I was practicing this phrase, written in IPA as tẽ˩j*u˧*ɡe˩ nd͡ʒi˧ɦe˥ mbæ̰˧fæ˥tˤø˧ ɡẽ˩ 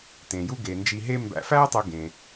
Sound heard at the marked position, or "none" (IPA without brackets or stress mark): u˧